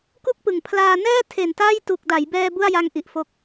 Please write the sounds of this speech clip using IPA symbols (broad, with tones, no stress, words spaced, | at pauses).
ku˥˩k̚pɯ˨˩ŋ pʰlaː˧nɛː˥˩ tʰe˨˩n taː˥˩j tu˨˩k̚da˩˦jbɛː˧ bu˥˩a̯ja˧ŋ ʔi˨˩ʔfo˦˥k̚